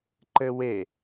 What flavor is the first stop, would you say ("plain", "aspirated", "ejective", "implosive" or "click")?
click